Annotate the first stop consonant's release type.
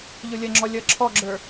click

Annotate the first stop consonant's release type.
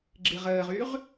click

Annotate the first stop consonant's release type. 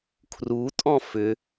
aspirated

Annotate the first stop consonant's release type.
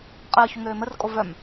ejective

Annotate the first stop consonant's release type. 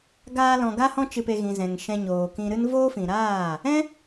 plain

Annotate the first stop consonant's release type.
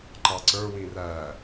click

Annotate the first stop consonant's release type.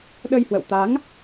implosive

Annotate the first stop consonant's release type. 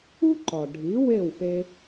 click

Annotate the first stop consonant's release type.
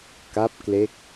plain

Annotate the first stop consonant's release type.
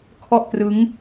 aspirated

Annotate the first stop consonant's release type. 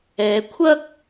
aspirated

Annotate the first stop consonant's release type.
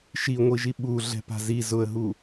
implosive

